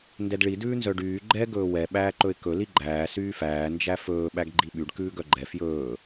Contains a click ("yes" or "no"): yes